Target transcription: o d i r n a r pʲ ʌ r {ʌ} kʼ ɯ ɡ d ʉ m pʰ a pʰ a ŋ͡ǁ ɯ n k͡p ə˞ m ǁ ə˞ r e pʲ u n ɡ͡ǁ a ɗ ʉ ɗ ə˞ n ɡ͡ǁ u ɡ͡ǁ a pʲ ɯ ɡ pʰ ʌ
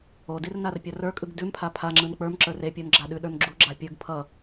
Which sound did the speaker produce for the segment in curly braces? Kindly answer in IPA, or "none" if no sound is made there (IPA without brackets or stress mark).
ə˞